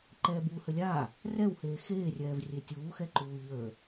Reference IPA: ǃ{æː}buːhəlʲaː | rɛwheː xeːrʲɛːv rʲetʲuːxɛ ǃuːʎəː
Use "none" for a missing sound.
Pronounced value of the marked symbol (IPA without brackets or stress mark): ɛː